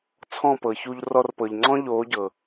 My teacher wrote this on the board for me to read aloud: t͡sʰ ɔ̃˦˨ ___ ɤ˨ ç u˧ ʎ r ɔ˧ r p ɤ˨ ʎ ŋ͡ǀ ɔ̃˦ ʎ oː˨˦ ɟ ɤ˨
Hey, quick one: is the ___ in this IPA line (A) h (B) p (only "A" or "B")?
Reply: B